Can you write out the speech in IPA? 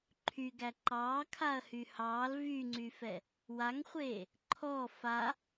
ǃʰ y ɡ æ ǃ ɑː kʰ a ɐ̯ h y h ɑː l v y ŋ͡ǀ y f ɛ | w a ŋ χʷ eː | ǃʰ ɔ f a

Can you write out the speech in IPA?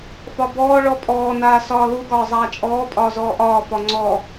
f ɒ b ɔː ɭ ɔ pʼ ɔː n aː s ɒː l u ɡ ɒː zˤ aː t͡ʃʼ ɔː pʼ ɒː z ɔː ʔ ɒː f ɒ ŋ͡ǀ ɔ

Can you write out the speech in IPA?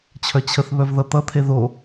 t͡ɕʰ œ t͡ɕʰ ə θ β œ v ð ʌ t̪ ʌ t̪ʰ e ð o

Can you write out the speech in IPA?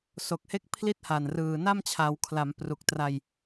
s o˨˩ k̚ h e˥˩ k̚ pʰ l i˦˥ t̚ h a˨˩ n r ɯː˨˩ n a˥˩ m t͡ɕʰ a˩˦ w kʰ l a˩˦ m p r u˨˩ k̚ t r a˧ j

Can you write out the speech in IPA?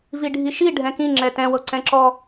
v i ɖʱ i ʃ i ɖʱ ɛ̃ k ĩ ŋ͡ǁ ɛ t ɛ̃ w ɤ ǀ ɛ̃ ǁ ɔ

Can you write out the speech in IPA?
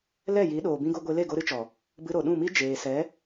l ɛ˦˨ j i˨˦ ɗ oː˨ b ĩ˦ ɡ o˦ ɡʷ e˧ l e˦˨ ɡ o˧ ɾ ɨ˦ t͡ʃ ɔ˨ | b ɨ˧ ɾ o˨ ɗ ũ˦˨ m i˦ d͡ʒ eː˨ s ɛ˨˦

